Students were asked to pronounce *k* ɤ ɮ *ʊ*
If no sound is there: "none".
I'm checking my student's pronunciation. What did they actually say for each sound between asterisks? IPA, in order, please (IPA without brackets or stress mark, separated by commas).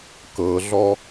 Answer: k, ɔ